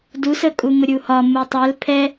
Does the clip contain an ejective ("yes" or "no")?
yes